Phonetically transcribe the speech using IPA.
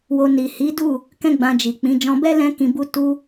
w o˧ n i˨ h i˨˦ d u˦˨ | k ɛ̃˦ ɡ͡b ã˧ d͡ʒ i˨ k͡p ĩ˨˦ d͡ʒ ɔ̃˧ b ɛ˦ l ɛ̃˦ k ĩ˧ b u˦ t u˦

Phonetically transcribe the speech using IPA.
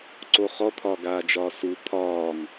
ǀ o χ ɔ t̪ʰ ɒː ɡ aː d͡ʒ ɒː s u t̪ʰ ɒː ŋ

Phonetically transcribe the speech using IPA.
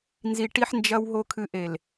n z i˨ ʈ i˨ ħ n d͡ʒ ɐ˨ w ɦ o˨ kʰ ɨ˨ ʔ e˨ l

